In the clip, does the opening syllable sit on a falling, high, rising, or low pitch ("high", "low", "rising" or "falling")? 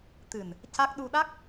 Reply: low